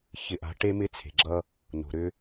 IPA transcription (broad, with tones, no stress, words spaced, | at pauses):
çɪ˨ʔa̤˨˦ ʈe˦mɪ˦t͡sʰe̤˨ɡ͡ǁʌ˦ | no̤˨ɾʏ˦